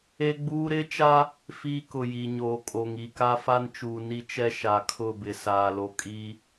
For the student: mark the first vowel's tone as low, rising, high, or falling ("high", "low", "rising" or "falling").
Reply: high